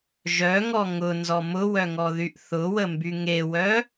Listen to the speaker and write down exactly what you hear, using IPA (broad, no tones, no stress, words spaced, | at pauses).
ʒœŋɔ ŋʊnzɔ mʊwœŋɔðyʔ θʊwəmby ŋewœ